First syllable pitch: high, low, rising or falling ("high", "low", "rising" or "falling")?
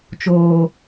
high